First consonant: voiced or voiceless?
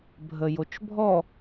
voiced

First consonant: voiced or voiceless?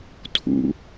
voiceless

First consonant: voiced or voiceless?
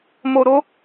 voiced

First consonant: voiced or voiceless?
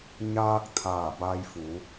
voiced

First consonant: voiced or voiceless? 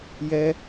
voiced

